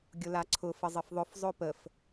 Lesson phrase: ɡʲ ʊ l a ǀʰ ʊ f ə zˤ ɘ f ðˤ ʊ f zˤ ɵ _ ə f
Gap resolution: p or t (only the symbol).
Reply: p